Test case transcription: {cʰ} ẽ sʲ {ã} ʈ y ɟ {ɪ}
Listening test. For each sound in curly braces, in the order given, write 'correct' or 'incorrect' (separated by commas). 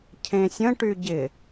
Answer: correct, incorrect, correct